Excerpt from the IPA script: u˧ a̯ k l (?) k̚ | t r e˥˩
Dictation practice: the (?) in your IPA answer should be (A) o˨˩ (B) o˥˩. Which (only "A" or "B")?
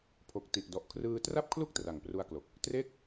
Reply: A